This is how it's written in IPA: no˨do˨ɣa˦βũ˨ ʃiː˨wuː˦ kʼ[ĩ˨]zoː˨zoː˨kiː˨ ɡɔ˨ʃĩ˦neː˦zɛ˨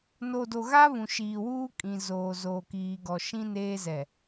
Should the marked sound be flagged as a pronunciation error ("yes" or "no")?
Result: no